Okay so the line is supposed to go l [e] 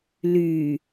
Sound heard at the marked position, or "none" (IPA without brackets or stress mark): y